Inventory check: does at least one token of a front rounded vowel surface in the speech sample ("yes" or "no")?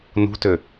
yes